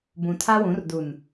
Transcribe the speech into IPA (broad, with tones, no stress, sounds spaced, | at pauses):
b ũ˨ tʰ a˦ w ũ˨˦ r d u˨ n